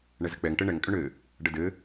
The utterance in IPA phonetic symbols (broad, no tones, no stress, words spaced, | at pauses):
ɳɛzɘk͡pɛŋ ʈɘɳɛŋ kʼʏɳɘ | ɖədɘ